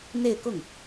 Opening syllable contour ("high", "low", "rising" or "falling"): falling